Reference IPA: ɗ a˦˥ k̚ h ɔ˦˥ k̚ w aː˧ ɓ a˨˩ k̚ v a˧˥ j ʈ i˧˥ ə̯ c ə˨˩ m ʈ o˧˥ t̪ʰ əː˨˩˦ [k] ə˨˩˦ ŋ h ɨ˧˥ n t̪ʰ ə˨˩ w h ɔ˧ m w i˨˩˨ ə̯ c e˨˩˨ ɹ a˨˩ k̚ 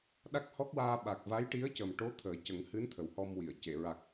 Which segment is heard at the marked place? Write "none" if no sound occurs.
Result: c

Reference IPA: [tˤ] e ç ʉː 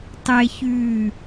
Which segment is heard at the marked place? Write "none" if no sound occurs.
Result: tˤ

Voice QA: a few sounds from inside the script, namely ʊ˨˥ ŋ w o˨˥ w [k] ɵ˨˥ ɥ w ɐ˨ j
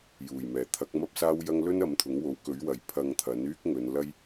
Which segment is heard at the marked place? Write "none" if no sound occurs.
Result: k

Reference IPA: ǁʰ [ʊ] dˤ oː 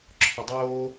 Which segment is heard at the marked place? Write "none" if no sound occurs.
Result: ʊ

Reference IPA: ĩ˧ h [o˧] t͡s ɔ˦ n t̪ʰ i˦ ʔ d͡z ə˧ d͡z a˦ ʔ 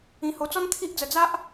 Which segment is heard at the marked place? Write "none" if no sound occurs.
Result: o˧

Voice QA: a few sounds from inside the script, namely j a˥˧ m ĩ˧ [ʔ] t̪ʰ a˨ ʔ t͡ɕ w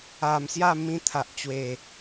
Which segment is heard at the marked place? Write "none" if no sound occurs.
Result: none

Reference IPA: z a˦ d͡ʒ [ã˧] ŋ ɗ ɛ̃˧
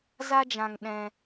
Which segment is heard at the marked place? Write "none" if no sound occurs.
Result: ã˧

